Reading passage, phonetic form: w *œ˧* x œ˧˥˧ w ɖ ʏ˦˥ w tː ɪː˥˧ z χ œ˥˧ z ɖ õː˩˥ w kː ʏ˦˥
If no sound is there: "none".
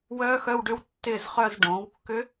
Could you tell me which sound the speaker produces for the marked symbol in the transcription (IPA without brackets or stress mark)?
œ˦˥